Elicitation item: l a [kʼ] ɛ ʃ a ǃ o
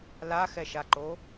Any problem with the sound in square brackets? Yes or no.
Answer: yes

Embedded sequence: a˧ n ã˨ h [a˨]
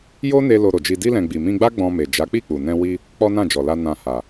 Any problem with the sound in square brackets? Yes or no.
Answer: no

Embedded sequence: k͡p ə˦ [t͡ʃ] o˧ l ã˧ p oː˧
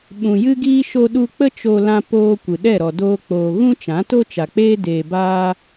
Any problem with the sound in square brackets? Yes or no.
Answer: no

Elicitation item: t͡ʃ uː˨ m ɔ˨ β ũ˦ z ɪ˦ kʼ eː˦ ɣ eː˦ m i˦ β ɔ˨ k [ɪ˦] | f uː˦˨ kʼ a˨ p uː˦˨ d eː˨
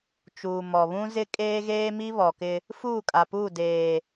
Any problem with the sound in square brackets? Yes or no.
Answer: no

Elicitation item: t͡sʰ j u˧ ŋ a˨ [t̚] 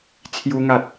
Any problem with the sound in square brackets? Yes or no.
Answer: no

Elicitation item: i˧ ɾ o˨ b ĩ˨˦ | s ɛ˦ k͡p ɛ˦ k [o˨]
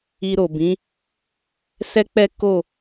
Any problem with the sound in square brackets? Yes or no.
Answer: yes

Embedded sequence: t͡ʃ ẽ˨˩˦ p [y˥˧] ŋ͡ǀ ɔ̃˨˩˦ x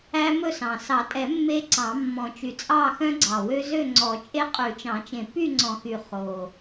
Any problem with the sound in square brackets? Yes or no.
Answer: no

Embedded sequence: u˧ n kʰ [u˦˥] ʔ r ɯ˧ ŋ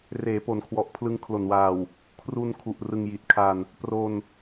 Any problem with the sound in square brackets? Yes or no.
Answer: yes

